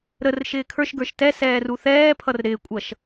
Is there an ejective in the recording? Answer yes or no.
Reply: yes